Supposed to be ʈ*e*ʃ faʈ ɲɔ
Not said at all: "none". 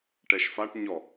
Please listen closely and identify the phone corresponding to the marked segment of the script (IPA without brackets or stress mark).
ɛ